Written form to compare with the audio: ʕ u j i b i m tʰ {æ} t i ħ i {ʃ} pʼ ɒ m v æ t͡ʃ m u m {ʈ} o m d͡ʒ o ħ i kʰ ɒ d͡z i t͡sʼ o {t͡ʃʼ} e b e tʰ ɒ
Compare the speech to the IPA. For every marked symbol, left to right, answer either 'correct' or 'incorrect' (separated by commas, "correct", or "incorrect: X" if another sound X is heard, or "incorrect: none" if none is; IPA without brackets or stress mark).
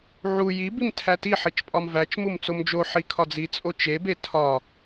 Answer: correct, incorrect: t͡ʃ, incorrect: t͡s, incorrect: t͡ʃ